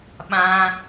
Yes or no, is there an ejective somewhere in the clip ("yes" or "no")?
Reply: no